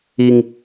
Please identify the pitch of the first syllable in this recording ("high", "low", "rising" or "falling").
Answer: high